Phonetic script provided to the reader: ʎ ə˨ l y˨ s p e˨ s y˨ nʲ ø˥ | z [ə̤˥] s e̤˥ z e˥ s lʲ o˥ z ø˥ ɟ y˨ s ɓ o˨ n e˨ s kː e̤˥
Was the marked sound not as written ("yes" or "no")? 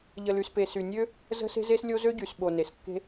no